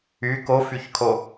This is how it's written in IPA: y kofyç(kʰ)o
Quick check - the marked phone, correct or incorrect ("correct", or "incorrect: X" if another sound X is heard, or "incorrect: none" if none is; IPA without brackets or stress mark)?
correct